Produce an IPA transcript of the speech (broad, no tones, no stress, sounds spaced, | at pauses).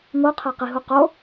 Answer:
ŋ o qʰ æ q i ɦ u q o